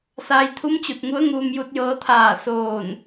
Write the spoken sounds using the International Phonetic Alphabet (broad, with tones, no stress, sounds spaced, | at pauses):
s aː˧ j t̪ʰ u˧˥ m t͡ɕ u˧˩ t̚ ŋ u˧˥ ə̯ ŋ uː˧ m j u˧ t̚ j ɤː˧ t̪ʰ aː˧˩ s oː˧˩ n